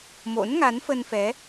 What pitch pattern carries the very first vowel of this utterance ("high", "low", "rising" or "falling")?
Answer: rising